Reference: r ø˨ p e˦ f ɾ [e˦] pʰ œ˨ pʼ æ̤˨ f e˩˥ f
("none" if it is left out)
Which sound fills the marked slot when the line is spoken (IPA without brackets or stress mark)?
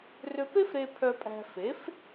e˨